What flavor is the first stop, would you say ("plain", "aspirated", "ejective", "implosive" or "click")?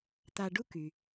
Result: plain